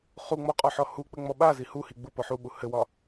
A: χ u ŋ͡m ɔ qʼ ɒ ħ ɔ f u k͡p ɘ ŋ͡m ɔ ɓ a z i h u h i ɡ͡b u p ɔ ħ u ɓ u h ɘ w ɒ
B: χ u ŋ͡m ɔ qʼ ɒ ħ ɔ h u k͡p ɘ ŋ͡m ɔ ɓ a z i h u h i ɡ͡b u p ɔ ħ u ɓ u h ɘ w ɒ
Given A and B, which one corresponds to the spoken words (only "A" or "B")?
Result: B